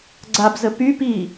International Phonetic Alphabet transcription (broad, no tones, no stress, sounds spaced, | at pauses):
ɡ͡ǀ a b z ə p y p i